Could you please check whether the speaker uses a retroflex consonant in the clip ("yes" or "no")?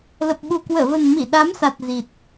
no